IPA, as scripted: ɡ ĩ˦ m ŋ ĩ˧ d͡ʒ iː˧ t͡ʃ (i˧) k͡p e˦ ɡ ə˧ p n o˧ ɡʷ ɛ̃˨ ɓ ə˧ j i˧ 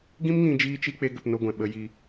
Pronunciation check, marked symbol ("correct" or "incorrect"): correct